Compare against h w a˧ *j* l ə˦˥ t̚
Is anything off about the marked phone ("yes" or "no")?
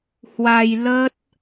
no